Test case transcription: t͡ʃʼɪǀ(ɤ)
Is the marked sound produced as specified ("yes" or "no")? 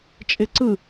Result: no